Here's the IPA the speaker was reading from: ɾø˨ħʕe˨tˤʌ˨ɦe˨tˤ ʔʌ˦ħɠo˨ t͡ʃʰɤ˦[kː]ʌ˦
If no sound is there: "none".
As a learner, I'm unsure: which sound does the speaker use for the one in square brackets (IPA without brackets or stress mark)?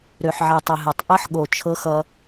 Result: x